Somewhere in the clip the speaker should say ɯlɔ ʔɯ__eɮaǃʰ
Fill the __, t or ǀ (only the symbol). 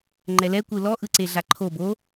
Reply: ǀ